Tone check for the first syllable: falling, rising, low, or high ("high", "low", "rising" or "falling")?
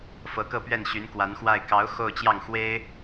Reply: rising